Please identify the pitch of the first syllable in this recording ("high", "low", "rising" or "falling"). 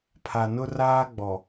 low